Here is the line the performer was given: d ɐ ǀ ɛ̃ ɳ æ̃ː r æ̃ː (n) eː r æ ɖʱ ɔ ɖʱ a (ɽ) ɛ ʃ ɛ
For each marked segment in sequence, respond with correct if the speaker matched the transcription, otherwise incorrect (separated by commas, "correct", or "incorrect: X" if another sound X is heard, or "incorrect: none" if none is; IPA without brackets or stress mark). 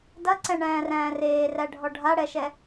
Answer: incorrect: r, correct